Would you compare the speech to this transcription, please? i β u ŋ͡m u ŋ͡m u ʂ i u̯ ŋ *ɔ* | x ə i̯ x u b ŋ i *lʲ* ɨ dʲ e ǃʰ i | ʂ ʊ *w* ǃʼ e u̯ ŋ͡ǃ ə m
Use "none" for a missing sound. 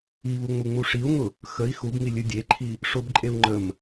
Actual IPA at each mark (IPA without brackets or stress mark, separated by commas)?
ʊ, lʲ, b